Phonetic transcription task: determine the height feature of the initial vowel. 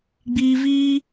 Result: high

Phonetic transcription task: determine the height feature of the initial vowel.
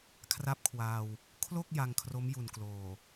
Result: low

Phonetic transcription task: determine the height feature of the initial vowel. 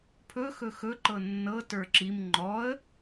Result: mid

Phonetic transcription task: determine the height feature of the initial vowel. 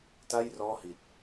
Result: low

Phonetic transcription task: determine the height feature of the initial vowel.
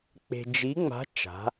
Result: mid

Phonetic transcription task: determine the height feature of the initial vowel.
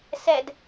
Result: mid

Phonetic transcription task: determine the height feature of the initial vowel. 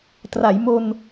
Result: low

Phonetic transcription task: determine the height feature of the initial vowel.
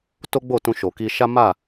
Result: mid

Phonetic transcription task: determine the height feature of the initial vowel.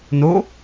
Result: mid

